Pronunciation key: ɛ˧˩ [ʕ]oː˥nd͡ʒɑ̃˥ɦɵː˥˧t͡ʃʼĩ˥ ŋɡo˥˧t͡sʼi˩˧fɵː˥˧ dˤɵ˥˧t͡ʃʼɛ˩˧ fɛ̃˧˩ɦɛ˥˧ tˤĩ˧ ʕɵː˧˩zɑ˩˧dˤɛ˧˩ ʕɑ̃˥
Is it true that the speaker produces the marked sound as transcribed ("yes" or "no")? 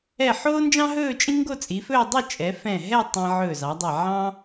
no